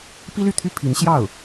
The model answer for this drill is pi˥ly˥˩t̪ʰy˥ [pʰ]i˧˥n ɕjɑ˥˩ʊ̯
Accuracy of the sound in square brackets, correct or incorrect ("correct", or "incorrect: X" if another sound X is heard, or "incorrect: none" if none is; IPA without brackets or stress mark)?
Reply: correct